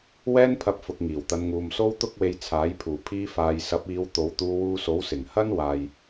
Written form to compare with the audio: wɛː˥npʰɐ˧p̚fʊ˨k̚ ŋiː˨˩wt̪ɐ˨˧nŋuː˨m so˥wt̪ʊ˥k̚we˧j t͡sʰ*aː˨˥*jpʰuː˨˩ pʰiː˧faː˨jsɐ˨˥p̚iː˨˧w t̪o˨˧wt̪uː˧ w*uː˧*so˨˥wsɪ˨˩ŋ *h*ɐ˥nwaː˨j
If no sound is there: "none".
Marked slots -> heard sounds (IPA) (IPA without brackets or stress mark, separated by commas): aː˨˥, uː˧, h